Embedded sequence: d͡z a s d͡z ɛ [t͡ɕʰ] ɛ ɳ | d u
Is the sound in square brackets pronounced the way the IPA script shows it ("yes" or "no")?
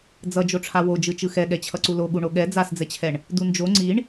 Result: yes